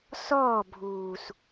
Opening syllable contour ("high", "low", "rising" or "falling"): falling